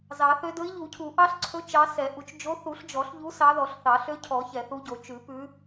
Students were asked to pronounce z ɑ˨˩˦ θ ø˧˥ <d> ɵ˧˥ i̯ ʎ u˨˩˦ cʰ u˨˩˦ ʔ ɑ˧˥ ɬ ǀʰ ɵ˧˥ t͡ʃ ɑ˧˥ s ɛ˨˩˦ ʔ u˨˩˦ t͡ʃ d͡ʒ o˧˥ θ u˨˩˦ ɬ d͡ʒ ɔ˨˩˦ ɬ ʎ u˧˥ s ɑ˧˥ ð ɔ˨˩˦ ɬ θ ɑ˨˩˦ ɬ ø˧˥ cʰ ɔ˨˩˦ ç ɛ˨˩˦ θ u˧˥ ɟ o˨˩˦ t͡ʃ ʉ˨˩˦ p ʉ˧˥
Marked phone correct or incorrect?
correct